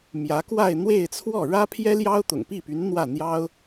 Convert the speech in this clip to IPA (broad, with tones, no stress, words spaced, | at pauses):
mjä˧˥kwa˥˧ɪ̯ n̪we˥˧ɪ̯t͡sʰwɔ˥˩ ɻä˥pʰjɛ˥ ljɑ˥ʊ̯t̪ʊ̰˨˩ŋpi˥˩py˧˥n n̪wä˥˩ n̪jɑ˥ʊ̯